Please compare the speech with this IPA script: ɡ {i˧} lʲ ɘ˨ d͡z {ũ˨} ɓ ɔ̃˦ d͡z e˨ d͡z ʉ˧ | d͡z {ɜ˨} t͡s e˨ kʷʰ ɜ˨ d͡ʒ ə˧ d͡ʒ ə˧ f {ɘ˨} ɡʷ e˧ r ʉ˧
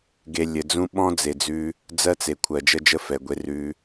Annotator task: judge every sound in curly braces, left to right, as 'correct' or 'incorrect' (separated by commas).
incorrect, incorrect, incorrect, incorrect